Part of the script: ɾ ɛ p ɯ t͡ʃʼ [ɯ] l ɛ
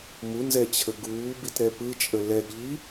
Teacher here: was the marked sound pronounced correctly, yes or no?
no